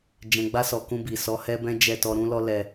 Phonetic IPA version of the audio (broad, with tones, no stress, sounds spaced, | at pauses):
d͡ʒ ɛ̃˨ ɡ͡b a˧ s ɔ˨ k ũ˧ b i˨ s ɔ˨˦ h ɛ˦ b ɛ̃˦ d͡ʒ ɛ˦˨ t ɔ˧ ɾ ũ˦ l ɔ˦ l ɛ˧